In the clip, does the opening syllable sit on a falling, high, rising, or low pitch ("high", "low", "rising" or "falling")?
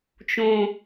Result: low